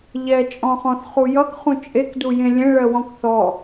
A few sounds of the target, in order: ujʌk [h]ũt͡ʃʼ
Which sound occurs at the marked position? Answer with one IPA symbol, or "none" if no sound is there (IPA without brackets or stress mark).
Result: χ